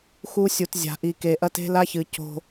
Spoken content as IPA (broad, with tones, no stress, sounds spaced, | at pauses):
x u˦ sʲ u˨ t zʲ a̤˨ ʔ i˨ k e˨ ʔ ɐ˦ t e̤˦ l a˦ ç ɨ˨ c o̤˦